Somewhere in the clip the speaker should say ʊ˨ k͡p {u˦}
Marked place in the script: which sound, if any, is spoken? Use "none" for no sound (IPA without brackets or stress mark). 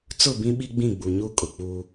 u˦